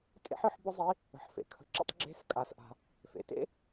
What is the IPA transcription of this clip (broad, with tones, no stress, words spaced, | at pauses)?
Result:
tʼḛ˥ħɯ˧˥ħ bʊ˥zˤi˧˥ | ə̤˩ħfḛ˩˧kʰə̤˩˧ǁə̰˧tˤ ɡ͡ǁe̤˧˥skʼa˩˧s ʔa̤˩ | fḛ˩tḛ˥